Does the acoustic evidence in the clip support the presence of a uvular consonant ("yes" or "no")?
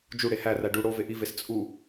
no